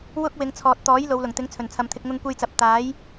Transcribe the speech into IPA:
w ʊ˥ k̚ w ɪ˨˧ ŋ t͡sʰ ɔː˨ t̚ t̪ ɔː˨˥ j l o˨˧ w l ʊ˨˩ ŋ t̪ ɪ˨˥ ŋ t͡sʰ ɵ˨˩ n t͡sʰ ɐ˨ m t̪ʰ ɪ˧ k̚ ŋ ʊ˧ ŋ kʷ e˧ j t͡s ɐ˨ p̚ t̪ aː˨˥ j

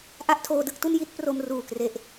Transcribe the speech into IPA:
ʔ a˥˩ ʔ tʰ oː˧ d ɯ˥˩ k̚ t u˥˩ n j i˦˥ t̚ p r o˧ m r uː˨˩ k r e˨˩ ʔ

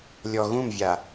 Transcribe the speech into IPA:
lʲ ɔ ɣ ũ m vʲ a

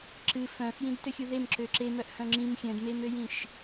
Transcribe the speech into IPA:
ǁ ɨ f œ̃ f j ĩ d t ø xʲ u ð e m ǁ ø ǁ e m œ ʔ h œ̃ ŋ͡ǁ ĩ m xʲ œ̃ d m e m ø j ĩ ʃ

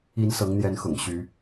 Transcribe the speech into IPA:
i˨˦ n s ɤ˨˦ ŋ n̪ j ɛ˨˦ n x ʊ̰˨˩ ŋ ɕ y˨˦

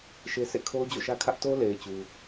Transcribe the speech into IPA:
ʃ e˦ sʰ ḛ˦˨ kʰ o˦ ʊ̯ d͡ʑ o̰˦˨ ʃ ä˦ kʰ ä˦ ʔ t o˦ l e˨ ɪ̯ t͡ɕ u˦

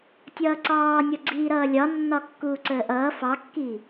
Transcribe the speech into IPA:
tʲ ʌː ǀ ɑː nʲ ʌ ɡ͡ǀ iː ɾ ʌː lʲ ɒ nː ɒ kː uː ǀ əː ʔ ʌː f ɑ kː iː

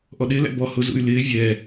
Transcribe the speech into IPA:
ʔ ɔ ɗ ɪ l æ̰ b ɔ h ʊ z ṵ y̯ l ɪː vʲ ɛ

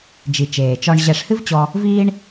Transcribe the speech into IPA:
d͡ʒ i˩ t͡ʃ eː˩ t͡ʃ ɔ˧ ɳ ʑ ɛ˧ ʂ h ɨ˥ v t͡ɕ ɔ˧ | v iː˥ ɳ

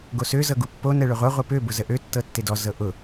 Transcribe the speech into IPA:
ɡ o s ø z ɤ ɡ u pː o n ɛ ɭ ø ʁʷ ɤ ʁʷ e p ø b ʊ z ə ʔ ø tː ɤ tː e d ɔ z ɤ ʔ ʊ

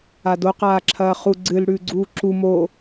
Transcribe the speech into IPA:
a d o q aː ǁʰ ɐː χ u ɡ͡ǀ ɨ l ɽ ʉː ɡ͡ǀ uː ǁ u m o

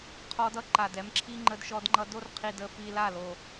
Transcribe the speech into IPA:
qʰ ɔ˧ d ʌ˦ ǃ a˨ d ɛ˧ m ǁʰ i˦ ŋ͡ǃ ə˧ d ʃ ɔ˧ d ŋ͡ǃ ʌ˧ d o˦ r qʰ i˨ d ə˨ f i˨ l a˦˨ l o˨

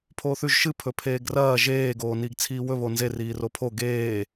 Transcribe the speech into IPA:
pʰ oː θ ʉ ʒ ʃ ɨ pʰ ɵ pʰ eː ɡ r ɐː ʒ eː ɡ oː n iː ɡ t͡sʰ iː w ɵ β o n z e r iː r o pʰ o ɡ eː

